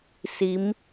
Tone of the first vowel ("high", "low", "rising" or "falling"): rising